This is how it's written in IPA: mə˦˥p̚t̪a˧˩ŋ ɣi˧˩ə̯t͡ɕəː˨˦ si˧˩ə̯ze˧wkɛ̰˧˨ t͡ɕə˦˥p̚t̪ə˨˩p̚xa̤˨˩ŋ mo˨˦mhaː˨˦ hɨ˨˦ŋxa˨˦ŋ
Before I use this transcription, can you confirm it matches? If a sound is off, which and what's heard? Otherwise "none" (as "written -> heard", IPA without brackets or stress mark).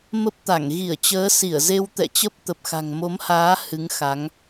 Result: k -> t̪